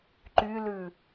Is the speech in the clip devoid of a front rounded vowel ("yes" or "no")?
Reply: no